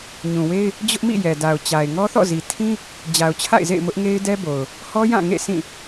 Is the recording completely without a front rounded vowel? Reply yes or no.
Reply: yes